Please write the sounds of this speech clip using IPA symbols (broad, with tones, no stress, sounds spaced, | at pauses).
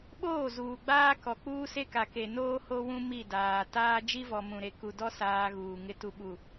ɓ oː˦˨ z uː˨ ɡ͡b aː˦ k ɔ˨ k͡p uː˦ s e˦ k a˨ k e˨ n oː˦ h o˦ w ũ˦ m i˦˨ d aː˨ t aː˦ d͡ʒ i˦ v ɔ˨ m ũ˨ ɾ e˨ k u˨ d ɔ˦ s aː˦ ɣ uː˨ ŋ ɪ˦ t u˨ ɓ u˨